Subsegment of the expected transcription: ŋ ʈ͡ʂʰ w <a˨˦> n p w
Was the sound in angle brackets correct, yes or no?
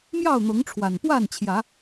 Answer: no